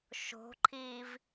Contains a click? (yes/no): yes